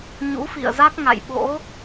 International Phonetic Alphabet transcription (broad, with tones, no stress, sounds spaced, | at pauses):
ɲ ṵ˧˥ f ḭ˧˨ ə̯ z a˦˥ k̚ ŋ a̰˧˨ j ɓ o̰˧˥